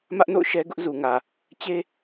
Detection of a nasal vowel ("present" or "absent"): absent